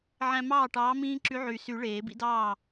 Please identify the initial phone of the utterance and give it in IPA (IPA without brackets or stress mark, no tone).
ʕ